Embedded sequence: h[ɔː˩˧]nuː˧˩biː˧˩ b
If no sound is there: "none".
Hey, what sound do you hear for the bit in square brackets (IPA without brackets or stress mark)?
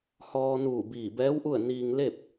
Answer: ɔː˧